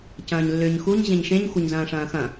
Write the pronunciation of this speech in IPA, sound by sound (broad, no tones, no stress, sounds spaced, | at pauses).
c ɐ̃ː ɲ lː ʏː ɲ x u ɲ ʑ ẽ ɲ ʃ ẽ ɲ xʷ ɐ ɲ z ɐ̃ː ʂ ɐ̃ː x ɐ̃